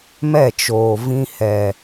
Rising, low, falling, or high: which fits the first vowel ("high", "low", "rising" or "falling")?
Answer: falling